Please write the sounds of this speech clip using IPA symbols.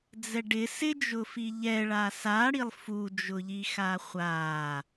d͡zɛɖɪ sɪd͡ʒʊfi ʎɛ ɭasaɽilˠ fud͡ʒʊʎi xaχʷa

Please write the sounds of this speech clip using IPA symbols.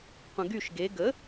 qʷə̃ɡyʃ ɡe ɡə

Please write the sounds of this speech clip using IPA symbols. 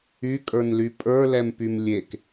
ykʼə˞nly pʼə˞lɛmpym lʲek

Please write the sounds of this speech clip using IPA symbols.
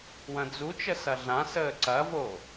wɐ̃d͡zut͡ʃə sɐɮãsəː ǀɐvo

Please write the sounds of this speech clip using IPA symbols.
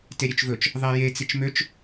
teɾʲøt͡ʃvɵt͡ʃ | ðˤɛje t͡sit͡ʃmøt͡ʃ

